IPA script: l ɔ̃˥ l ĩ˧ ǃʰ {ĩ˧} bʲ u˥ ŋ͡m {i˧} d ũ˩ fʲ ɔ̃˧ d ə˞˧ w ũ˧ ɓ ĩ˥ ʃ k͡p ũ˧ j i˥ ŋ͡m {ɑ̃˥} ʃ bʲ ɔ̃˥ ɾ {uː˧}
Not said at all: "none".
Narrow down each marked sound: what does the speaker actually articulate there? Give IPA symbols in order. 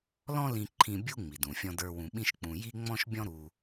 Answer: ĩ˧, i˩, ɔ̃˥, u˧

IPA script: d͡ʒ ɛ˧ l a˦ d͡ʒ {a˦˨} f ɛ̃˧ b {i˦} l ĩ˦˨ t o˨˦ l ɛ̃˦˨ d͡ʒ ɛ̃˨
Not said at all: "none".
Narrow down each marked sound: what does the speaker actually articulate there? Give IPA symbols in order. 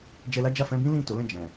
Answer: a˦˨, ĩ˦

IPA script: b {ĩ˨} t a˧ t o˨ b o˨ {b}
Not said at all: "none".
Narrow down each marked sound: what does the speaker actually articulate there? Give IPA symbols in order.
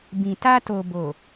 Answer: ĩ˨, none

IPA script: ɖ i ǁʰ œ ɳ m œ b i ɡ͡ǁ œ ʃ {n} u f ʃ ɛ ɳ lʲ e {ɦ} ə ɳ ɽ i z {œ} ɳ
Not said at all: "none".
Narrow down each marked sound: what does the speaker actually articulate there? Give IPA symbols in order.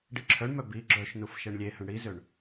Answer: n, h, ø

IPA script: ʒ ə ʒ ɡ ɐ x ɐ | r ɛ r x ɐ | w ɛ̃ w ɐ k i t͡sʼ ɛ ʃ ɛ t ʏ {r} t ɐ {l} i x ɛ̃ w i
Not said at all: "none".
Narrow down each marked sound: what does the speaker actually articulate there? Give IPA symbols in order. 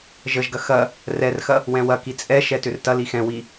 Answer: r, l

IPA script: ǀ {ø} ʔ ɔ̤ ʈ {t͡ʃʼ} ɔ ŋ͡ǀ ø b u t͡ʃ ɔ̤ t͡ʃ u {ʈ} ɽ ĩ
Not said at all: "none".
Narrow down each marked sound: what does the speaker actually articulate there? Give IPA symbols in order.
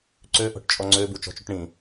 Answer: ø, t͡ʃʼ, ʈ

